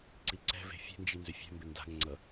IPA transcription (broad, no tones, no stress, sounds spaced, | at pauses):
ǀ i ǀ ɛ̤ v e̤ fʲ e̤ n d͡ʒ i n z ʏ fʲ ɛ̤ m b ʏ n d a̤ ŋ ŋ͡ǀ ʌ